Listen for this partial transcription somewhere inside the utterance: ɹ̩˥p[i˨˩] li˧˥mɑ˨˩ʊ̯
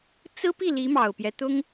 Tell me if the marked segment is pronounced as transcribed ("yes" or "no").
no